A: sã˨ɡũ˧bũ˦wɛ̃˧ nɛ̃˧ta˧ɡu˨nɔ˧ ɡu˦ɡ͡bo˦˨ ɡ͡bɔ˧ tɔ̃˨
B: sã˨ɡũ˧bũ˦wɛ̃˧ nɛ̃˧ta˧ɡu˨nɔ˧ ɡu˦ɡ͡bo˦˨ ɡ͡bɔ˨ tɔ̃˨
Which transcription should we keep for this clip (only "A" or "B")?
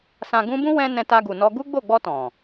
A